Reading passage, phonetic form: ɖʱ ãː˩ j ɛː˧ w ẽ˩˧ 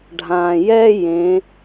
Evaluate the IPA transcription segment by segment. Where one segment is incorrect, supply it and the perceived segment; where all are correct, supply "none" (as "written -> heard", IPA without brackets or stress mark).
w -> j